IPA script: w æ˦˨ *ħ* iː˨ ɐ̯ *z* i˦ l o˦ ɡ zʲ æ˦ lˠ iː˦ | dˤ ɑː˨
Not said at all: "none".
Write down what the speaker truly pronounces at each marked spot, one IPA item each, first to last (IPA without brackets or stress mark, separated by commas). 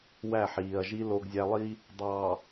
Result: ħ, ʒ